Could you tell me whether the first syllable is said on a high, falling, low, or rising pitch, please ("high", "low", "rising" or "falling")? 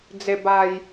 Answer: low